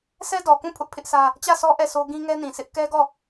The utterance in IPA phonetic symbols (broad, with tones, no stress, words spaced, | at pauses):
sɛ˦dɔ˨kũ˦˨ pʰʊ˦ʔpʰɪ˦ʔsä˦ | t͡ɕä˦˨sɔ˦ ʔɛ˦˨sʰo˦ ɡĩ˦ŋɛ˦nĩ˨sʰɪ˦ʔ kɛ˦ɡɔ˦˨